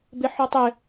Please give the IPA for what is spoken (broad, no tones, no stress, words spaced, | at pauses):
beħɔtˤɪ